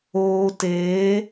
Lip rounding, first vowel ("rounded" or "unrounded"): rounded